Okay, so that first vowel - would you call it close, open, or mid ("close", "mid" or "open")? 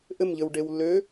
mid